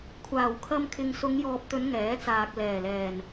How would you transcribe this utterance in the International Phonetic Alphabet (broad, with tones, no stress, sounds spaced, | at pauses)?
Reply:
kʷʰ aː˨˩ w kʰ ɐ˧ m kʰ ɪ˨ ŋ s ʊ˨˧ ŋ j ɔː˨ p̚ t̪ ɵ˨˧ n ŋ ɛː˨˥ t͡s aː˨ k̚ l ɛː˨˩ l ɛː˨˩ n